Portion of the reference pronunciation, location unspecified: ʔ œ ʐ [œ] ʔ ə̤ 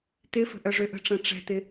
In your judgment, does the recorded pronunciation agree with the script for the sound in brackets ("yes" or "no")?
no